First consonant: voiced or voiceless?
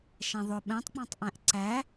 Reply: voiceless